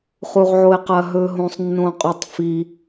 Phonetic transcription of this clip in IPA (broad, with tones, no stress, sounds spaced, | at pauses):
χ u˧ ʁ ʕ o˧ e̯ q ɐ˧ ɦ ɵ˧ ɦ õ˧ sˤ nː õ˧ qʼ o˧ tˤ f i˧